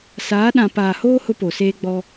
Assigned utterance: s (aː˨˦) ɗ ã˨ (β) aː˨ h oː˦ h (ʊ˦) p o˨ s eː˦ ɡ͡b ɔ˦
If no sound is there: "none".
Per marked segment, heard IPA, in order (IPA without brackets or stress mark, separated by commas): aː˨˦, p, ʊ˦